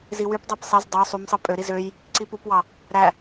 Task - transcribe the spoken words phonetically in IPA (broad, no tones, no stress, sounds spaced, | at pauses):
z i w y p dˤ æ p sˤ e z dˤ o sˤ y m sˤ ɯ pʼ ø ɾ i z ø j | ǀ i p u p w ɑ | ɾ æ